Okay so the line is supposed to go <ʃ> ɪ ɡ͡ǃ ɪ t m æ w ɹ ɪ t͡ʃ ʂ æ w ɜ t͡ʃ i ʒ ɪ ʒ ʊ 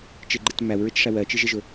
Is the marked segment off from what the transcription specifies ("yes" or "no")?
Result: yes